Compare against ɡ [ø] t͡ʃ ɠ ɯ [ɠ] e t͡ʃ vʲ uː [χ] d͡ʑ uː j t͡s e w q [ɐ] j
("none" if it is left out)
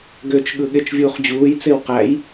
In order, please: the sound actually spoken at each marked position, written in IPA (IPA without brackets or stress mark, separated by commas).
ø, ɠ, χ, æ